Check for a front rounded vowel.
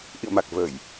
absent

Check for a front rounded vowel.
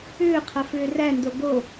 present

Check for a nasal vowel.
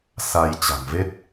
absent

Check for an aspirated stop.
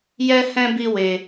absent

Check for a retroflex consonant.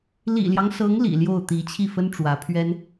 present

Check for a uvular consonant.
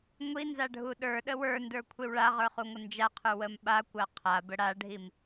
present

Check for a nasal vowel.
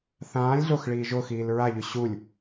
present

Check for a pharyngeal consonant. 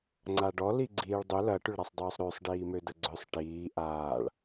absent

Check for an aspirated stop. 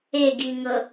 absent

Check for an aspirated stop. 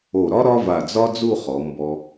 absent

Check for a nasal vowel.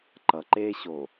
absent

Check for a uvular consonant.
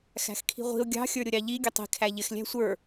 present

